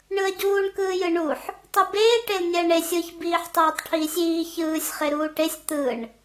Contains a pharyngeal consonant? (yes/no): yes